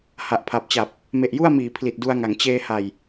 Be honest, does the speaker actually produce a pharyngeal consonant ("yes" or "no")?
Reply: no